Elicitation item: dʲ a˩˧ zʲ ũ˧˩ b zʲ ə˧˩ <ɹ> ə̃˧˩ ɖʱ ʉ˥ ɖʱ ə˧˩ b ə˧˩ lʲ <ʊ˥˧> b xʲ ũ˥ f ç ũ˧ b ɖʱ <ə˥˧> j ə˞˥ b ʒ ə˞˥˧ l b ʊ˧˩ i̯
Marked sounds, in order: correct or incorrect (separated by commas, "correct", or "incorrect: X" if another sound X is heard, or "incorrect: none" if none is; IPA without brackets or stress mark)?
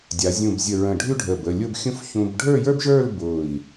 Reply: correct, correct, incorrect: ə˞˥˧